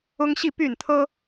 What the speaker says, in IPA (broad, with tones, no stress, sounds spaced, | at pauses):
ʊ˦ ŋ ɕ i˥˨ p y˥˨ n t̪ʰ ɤ˦